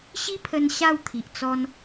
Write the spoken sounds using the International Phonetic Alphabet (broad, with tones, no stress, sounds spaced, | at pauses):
ɕ i˦ pʰ ə˧ n ɕ a˥˧ w t̪ʰ i˨ ʔ t͡s ɔ˦ n